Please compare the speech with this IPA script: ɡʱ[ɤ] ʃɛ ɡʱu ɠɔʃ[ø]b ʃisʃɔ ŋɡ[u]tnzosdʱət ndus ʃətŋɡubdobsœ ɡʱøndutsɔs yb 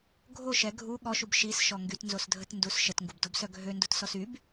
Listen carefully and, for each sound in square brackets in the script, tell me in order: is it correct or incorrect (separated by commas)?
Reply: incorrect, incorrect, incorrect